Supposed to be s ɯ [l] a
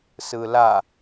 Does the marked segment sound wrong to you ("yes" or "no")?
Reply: no